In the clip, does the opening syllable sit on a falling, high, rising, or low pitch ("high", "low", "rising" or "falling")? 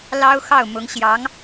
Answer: high